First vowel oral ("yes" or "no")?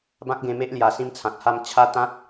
no